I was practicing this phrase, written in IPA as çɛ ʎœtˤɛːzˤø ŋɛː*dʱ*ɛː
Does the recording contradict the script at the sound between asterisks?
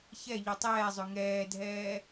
no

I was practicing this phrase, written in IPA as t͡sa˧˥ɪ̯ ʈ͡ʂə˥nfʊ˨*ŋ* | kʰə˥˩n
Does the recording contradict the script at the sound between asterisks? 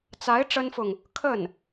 no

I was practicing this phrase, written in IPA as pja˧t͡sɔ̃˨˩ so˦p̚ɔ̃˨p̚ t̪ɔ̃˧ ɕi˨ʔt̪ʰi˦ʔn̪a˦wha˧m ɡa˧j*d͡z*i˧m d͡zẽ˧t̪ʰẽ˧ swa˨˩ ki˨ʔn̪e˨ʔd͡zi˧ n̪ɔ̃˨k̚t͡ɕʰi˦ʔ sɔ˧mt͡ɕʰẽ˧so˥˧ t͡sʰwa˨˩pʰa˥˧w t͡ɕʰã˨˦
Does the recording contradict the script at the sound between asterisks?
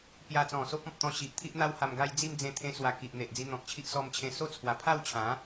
no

